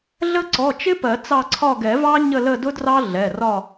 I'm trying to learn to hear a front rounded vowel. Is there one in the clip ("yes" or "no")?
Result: no